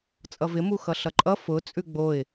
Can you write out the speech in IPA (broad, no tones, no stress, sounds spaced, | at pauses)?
t͡sʼ ʌ v ɪ m u x ʌ ɬ ʌ ǃʼ ʌ f ʊ t͡sʼ ʉ ɡ͡b o ɪ̯